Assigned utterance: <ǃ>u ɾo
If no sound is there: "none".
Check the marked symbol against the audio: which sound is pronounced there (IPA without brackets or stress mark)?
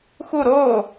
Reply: x